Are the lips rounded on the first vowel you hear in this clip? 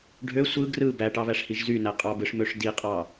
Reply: yes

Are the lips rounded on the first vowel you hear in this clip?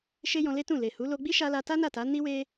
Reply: no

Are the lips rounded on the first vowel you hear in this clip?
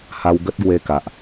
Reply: no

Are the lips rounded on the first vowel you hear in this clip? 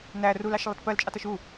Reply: no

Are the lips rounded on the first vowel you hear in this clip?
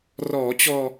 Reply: yes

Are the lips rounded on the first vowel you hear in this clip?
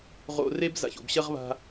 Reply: yes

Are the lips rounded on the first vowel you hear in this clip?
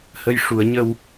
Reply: no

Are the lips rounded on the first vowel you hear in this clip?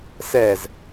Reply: no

